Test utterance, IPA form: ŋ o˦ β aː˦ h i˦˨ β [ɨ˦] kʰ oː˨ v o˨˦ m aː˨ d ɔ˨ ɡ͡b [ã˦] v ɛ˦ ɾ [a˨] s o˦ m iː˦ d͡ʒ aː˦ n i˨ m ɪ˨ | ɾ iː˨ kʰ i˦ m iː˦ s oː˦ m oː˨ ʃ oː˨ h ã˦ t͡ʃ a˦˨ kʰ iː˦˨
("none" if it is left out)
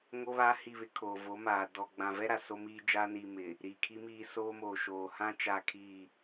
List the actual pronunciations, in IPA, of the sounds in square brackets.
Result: ɪ˦, ã˨, a˨

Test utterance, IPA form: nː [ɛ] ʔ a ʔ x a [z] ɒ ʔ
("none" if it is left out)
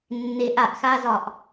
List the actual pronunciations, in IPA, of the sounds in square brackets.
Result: e, z

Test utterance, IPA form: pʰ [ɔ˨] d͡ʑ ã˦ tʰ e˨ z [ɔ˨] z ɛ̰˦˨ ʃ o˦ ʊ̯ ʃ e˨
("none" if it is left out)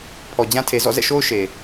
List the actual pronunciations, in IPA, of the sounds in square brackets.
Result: ɔ˨, ɔ̰˦˨

